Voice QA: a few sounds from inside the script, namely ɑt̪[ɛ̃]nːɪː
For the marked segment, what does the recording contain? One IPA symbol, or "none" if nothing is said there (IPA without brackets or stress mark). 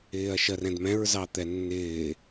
ɛ